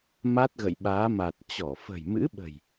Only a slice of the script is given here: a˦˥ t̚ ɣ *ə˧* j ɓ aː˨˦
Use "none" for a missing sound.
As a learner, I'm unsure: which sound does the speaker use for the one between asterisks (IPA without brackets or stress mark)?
ə̰˧˨